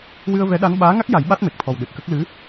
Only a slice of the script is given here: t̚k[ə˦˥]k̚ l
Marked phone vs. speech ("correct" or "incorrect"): correct